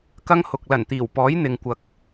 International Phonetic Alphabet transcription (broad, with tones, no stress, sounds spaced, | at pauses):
k ɐ˥ ŋ h ʊ˨ k̚ l ɐ˨˩ n t̪ iː˨˩ w p ɔː˨˥ j n̪ ɪ˨ ŋ kʷ ɐ˨ k̚